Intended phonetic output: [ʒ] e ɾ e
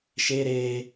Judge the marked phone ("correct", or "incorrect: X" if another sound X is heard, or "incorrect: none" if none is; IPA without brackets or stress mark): incorrect: ʃ